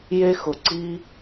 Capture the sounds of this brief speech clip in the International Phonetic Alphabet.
j e˥ x ʊ˩ ǀ i˥

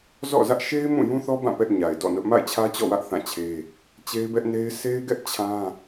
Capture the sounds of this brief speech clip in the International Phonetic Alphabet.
z ɔ̰˦˨ z ä˦ ʔ ʃ e˦ ɪ̯ m ũ˦˨ j ũ˦ θ ɔ˦ b ã˦˨ p ɛ˦ ʔ ɲ a˨ ɪ̯ d ɔ̰˦˨ n ʊ˦ ʔ m a̰˦˨ ɪ̯ t͡ɕʰ ä˦ t͡ɕ ɔ̰˦˨ w ä˦ ʔ θ ã˦˨ t͡ɕʰ e˦ | t͡ɕ e˦ ɪ̯ b ɛ˦ ʔ n e˦ ɪ̯ s e˦ ɪ̯ ɡ ɛ˦ ʔ t͡ɕʰ ã˦

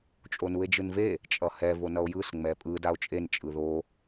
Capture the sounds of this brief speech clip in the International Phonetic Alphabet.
t͡ʃʼ o n u e̯ d͡ʒ ɯ n v e | t͡ʃʼ ʌ h ɛ v o n ʌ o̯ j ɯ s ŋ͡m ɛ pʼ ɯ d a o̯ t͡ʃʼ e n t͡ʃʼ ɯ ð o

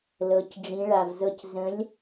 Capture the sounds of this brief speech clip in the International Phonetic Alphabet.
l ɤ˩˧ c ɖ͡ʐ ĩ˩˧ ɭ a˨˩ v z ɤ˧ c z ə̃˨˥ lʲ

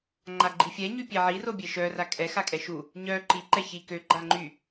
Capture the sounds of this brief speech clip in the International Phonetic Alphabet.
ŋ͡ǃ a ɡ͡ǃ i fʲ ɛ ɲ y pʲ e ʕ i r o bʲ e ʃ œ r a kʼ ɛ x a kʼ ɛ ʃ u | ɲ œ ǃ i ǃ ɛ ç i k ø ɡ͡ǃ a ŋ͡ǃ y

